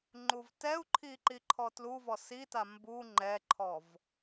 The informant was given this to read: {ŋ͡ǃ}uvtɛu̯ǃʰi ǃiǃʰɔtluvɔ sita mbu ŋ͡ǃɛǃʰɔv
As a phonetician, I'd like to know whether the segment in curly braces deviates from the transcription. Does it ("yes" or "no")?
no